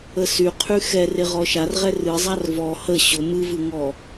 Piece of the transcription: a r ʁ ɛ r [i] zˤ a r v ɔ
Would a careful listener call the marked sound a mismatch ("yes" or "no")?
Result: yes